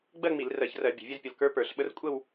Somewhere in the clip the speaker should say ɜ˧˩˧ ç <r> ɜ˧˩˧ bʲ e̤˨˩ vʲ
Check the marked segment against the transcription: correct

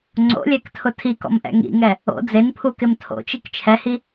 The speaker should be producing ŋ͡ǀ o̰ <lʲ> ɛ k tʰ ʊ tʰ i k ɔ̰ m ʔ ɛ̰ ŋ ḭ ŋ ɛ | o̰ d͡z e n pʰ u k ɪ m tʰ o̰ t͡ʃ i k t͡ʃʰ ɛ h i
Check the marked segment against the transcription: correct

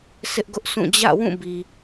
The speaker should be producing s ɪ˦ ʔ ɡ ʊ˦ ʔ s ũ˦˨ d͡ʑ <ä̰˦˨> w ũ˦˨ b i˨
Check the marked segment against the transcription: correct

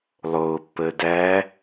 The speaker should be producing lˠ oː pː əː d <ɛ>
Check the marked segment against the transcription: incorrect: æ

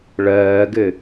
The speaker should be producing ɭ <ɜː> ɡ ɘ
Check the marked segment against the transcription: correct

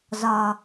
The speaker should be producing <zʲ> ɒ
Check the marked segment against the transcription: incorrect: z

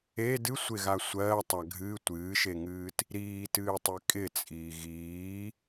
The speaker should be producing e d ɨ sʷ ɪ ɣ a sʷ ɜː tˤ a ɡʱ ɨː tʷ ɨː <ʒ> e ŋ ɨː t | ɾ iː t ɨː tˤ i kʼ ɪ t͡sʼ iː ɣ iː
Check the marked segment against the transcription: incorrect: ʃ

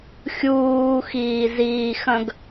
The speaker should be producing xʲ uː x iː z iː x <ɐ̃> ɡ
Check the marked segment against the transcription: correct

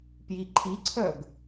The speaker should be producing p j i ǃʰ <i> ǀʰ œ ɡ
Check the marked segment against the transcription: correct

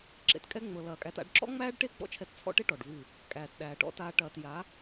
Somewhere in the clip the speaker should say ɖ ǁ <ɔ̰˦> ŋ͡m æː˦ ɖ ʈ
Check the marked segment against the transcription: correct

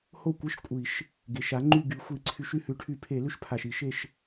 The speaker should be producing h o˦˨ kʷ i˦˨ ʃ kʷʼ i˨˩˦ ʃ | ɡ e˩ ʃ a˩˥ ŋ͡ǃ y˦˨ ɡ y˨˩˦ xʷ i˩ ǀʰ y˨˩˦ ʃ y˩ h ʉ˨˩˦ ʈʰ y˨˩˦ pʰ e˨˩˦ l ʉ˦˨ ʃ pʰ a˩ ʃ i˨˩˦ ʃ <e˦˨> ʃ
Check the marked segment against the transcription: correct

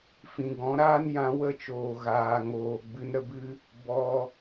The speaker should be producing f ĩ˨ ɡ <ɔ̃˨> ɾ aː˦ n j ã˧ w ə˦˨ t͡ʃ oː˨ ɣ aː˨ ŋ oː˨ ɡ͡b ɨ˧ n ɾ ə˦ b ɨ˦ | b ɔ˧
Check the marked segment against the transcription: incorrect: ɔ̃˨˦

